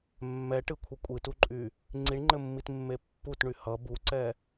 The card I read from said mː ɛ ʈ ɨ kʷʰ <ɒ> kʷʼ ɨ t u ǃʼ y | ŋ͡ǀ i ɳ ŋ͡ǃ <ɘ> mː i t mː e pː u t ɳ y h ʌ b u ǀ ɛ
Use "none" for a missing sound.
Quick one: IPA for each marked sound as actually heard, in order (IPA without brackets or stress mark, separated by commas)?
ʌ, ɘ